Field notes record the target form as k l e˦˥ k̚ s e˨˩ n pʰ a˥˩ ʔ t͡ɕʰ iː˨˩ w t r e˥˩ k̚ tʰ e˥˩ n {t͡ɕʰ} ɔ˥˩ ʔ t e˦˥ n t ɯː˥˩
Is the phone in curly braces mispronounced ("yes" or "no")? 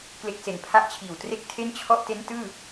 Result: no